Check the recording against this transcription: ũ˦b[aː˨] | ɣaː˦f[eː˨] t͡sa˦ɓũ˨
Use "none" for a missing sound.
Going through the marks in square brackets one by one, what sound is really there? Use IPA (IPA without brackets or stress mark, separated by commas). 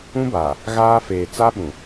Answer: aː˨, eː˨